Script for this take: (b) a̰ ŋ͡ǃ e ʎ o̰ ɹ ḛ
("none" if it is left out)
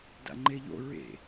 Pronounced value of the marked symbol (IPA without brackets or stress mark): d